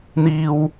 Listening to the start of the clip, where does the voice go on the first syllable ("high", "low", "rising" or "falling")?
high